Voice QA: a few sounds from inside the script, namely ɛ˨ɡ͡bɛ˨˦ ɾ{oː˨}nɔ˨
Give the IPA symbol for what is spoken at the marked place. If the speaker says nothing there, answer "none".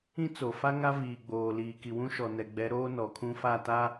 oː˦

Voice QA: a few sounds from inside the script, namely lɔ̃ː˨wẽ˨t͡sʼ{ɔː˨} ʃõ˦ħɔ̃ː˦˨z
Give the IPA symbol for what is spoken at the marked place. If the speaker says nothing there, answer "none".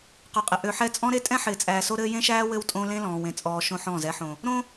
ɔː˨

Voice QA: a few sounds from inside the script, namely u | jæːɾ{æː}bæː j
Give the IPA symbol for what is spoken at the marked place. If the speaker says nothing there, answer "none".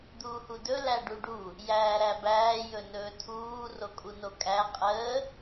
æ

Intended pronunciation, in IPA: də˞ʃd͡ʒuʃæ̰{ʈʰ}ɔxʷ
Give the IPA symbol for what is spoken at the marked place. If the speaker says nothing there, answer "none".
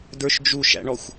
ɳ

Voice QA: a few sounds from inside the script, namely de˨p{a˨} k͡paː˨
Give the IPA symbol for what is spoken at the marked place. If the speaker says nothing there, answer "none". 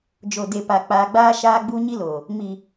a˨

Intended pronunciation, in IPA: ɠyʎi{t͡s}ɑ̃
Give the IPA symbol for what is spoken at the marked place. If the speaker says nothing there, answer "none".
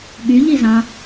z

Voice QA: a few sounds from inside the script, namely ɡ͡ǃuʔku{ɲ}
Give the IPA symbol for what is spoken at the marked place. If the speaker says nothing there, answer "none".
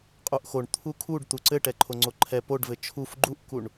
ɳ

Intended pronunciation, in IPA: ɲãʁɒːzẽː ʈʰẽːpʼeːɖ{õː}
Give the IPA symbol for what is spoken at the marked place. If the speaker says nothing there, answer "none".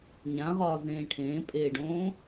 õː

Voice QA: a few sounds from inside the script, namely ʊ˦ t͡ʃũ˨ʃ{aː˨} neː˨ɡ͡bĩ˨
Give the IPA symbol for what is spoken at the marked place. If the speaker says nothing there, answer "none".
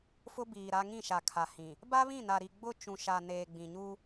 a˨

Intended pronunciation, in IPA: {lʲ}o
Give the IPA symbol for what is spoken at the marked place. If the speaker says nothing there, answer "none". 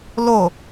l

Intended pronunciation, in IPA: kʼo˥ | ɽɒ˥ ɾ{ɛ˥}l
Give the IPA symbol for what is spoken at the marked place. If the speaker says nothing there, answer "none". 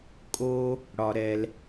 ɛ˥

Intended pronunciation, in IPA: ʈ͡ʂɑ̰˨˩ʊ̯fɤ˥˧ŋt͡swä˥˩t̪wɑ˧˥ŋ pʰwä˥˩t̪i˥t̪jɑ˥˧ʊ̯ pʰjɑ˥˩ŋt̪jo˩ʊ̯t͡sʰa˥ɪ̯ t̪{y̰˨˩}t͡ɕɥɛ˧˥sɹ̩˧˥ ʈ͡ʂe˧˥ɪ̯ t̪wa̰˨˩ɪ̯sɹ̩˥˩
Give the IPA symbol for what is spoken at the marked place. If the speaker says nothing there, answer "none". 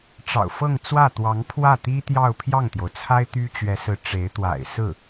y˥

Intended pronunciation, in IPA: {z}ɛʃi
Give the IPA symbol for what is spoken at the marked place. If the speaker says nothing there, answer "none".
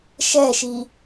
ʃ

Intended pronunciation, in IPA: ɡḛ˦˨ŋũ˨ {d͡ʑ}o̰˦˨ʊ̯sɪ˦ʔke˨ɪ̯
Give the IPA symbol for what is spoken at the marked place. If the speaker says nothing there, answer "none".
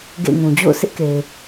d͡ʑ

